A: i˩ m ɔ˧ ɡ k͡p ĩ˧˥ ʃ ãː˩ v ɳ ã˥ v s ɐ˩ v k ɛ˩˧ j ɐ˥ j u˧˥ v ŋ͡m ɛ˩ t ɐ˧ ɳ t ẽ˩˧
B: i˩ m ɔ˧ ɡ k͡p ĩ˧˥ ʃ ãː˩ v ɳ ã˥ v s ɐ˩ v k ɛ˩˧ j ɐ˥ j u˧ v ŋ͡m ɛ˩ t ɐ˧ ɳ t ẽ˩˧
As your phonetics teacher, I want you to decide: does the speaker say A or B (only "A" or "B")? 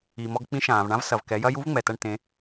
A